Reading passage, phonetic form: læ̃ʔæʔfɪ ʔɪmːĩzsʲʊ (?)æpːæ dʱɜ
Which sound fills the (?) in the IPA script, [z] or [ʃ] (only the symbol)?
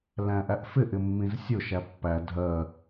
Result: ʃ